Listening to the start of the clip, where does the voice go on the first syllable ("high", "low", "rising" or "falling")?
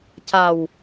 low